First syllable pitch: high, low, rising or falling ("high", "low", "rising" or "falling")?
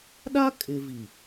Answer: high